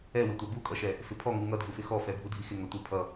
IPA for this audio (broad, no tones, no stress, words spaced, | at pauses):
ɛwɪtʷɛ bukʼʌʃɛ | fɪpʰɔŋu ŋʌdʱufɪ xɔfɛ bʱudʱixɪ ŋʌtʷɪ pʰʌ